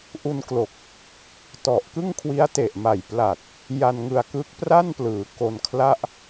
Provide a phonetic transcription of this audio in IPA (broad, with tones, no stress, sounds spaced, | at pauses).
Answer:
ʔ u˧ n k l o˨˩ k̚ | t ɔ˨˩ ʔ k ɯ˥˩ ŋ kʰ w i˦˥ a̯ t e˨˩ ʔ m a˨˩ j p l a˨˩ t̚ | j a˧ n ŋ ɯ˧ a̯ k ɯ˦˥ k̚ p r a˥˩ n p l ɯː˩˦ k o˧ n kʰ l a˥˩ ʔ